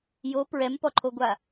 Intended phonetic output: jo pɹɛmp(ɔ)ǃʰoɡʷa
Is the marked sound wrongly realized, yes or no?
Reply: no